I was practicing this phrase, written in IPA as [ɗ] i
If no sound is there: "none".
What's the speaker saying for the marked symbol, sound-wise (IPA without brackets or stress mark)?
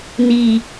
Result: n